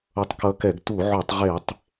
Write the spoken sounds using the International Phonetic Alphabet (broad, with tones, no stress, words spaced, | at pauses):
ʌ˧˥tˤkʌ˧˥kɛ˧˩˧ɡ tu˧˩˧ʕo˧˩˧tˤʁe˧˩˧tˤ